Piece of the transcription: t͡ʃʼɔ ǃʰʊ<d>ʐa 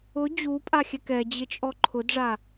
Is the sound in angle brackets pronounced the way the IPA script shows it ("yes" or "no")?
yes